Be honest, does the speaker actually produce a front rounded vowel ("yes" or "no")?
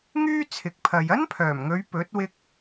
yes